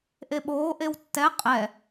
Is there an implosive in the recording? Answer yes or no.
yes